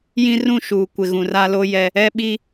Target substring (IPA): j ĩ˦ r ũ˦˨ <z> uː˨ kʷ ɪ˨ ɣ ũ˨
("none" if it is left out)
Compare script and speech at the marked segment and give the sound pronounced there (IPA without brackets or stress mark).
ʃ